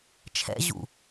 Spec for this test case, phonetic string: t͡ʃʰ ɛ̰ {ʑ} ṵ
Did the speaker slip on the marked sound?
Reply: no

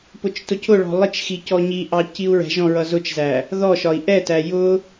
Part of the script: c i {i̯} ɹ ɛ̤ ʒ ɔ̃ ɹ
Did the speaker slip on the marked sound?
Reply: yes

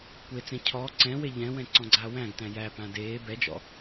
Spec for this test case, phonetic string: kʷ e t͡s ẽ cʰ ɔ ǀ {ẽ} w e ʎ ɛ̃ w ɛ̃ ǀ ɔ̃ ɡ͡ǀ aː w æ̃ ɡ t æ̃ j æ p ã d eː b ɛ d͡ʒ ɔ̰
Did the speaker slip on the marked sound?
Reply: yes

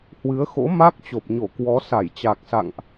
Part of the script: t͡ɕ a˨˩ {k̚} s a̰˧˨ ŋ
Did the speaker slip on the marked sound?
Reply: no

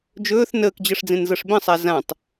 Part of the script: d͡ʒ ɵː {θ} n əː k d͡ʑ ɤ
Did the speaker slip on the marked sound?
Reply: no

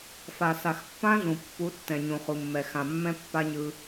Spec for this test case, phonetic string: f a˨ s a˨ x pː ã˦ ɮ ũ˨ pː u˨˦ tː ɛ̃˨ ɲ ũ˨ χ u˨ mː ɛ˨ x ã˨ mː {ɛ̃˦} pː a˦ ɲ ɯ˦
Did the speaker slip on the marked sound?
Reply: no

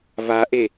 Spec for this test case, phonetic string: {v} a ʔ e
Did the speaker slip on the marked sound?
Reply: no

